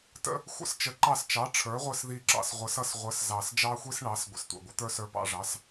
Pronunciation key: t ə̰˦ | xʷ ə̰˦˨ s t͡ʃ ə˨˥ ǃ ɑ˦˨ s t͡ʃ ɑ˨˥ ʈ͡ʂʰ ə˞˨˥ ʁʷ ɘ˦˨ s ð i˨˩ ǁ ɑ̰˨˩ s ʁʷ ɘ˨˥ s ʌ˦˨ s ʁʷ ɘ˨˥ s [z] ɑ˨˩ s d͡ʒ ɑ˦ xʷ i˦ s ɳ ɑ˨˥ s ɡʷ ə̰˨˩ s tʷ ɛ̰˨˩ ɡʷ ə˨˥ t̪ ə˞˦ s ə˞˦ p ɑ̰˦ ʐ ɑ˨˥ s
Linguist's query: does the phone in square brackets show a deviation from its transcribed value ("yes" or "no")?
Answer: no